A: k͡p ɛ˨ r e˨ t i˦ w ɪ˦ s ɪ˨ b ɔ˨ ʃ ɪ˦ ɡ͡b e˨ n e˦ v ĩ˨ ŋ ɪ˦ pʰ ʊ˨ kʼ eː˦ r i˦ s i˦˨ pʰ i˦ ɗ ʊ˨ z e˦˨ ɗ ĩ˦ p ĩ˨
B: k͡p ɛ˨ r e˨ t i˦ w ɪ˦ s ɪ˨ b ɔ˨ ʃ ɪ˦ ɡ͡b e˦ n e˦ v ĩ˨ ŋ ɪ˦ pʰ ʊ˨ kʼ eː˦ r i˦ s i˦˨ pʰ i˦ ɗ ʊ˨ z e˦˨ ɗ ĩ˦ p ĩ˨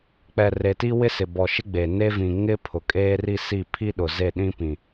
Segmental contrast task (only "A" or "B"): A